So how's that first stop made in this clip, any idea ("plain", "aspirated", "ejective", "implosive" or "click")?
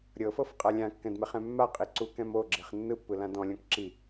ejective